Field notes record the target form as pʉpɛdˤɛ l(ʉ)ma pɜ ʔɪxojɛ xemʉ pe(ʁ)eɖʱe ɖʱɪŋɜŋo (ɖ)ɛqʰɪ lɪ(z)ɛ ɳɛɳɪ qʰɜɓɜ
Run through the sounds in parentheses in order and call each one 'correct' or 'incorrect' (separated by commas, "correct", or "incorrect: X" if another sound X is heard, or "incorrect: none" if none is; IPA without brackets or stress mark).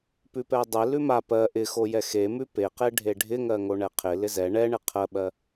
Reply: correct, incorrect: q, incorrect: ɳ, correct